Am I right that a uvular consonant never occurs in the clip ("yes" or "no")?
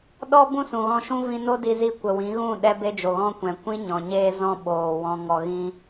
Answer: yes